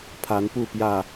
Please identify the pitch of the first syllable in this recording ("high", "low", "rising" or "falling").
rising